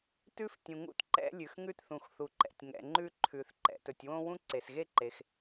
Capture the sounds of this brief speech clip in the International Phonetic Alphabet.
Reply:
t ʉ˥ f tʲ ũ˩ ŋ ṵ˥ t ǃ ɛ̰˥ lʲ ʉ˩ x ŋ ʉ˥ t θ ũ˩ x θ u˩ ǃ ɛ̰˩ tʲ ŋ ɛ̰˩ ŋ͡ǃ ʉ˥ ǃʰ ʉ˩ θ ǃ ɛ̰˩ t ɵ˩ tʲ w õ˥ w ũ˥ ǀ e˩ s ɣ e˥ ǃ e˩ x

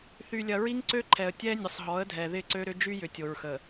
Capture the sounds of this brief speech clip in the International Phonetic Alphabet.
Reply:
θ y˨ lʲ ɐ˨ ɹ i˦ ŋ ǀ ø˦ ǃʰ ɛ˨ ə̯ tʲ ɛ˦ nʲ ə˨ sˤ ɦ ɔ˨˦ ə̯ dʱ ɛ˨ ð ɪ˦˨ ǀ ø˦ ɾ ʏ˦ d͡ʒ y˦ j ʏ˨ tʲ o˨ ɹ x ə˨

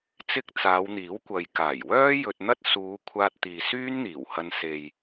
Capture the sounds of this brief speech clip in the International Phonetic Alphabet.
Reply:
t͡s ɪ˥ k̚ t͡s aː˨˧ w n̪ iː˨˥ w kʷ ɐ˨ j k aː˨˩ j w œː˥ j ɵ˧ t̚ n̪ ɐ˥ t̚ s uː˨˧ kʷʰ aː˧ t̚ t̪ iː˨ s yː˥ n n̪ iː˨˩ w h ɐ˧ n s e˨ j

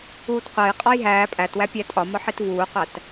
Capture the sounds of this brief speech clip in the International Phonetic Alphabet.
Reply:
uː t qʷ æ j qʼ ɒ j ɦ æː pʼ æ t w æ pʲ æ tʼ ɒ m ɒ ħ i t v uː qʷ æ t

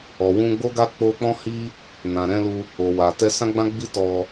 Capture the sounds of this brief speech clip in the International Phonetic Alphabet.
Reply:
ɔ˨ w ũ˧ ɡ͡b o˦ ɡ a˦ k͡p o˧ k͡p ɔ̃˦ h i˦ | n ã˨ ɾ ɛ̃˧ l u˧ | o˨ w a˨ t ɛ˧ s ã˦ ɡ͡b ã˦ ɡ͡b i˧ t ɔ˧

